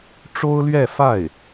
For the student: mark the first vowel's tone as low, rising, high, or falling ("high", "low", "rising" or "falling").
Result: high